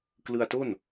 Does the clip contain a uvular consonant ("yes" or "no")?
no